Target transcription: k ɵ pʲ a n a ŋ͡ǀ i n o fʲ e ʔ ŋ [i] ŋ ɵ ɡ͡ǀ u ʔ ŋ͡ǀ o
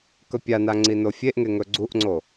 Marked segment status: incorrect: e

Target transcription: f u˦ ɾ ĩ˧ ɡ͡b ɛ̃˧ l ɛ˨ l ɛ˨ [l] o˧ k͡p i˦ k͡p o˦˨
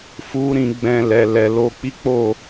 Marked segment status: correct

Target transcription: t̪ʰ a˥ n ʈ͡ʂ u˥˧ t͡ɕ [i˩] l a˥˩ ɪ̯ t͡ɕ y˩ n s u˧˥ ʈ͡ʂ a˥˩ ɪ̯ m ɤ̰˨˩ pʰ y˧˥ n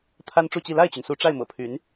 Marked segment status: incorrect: i˥˧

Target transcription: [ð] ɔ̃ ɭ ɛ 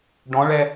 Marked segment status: incorrect: ɖ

